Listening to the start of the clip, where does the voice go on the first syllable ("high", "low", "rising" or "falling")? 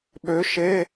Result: rising